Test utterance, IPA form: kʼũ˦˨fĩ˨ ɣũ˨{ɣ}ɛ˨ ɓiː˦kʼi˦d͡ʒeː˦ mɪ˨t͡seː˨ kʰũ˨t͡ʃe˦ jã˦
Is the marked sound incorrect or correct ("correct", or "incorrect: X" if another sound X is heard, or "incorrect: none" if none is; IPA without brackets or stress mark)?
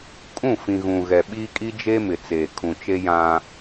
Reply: correct